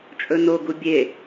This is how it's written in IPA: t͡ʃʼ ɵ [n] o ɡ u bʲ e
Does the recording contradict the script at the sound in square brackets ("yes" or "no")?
no